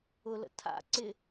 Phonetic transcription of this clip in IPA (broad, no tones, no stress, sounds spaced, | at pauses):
ʊ l ə̰ tʰ a̰ ǀ ɪ